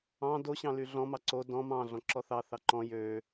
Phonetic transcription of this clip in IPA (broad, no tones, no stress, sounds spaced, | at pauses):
ɑ̃ d o ɕ ɑ̃ l y ɮ ɔ̃ m ɑ ǀ o d ɔ̃ m ɑ̃ ɮ ɔ̃ ǁ ɔ θ ɑ θ ɑ ǃ ɔ̃ j ø